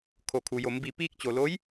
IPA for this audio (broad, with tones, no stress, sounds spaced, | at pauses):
kʰ o˩ kʰ u˩ j o˩˧ m b i˧˩ p iː˧ k̚ t͡ɕ o˧˩ l o˧˥ j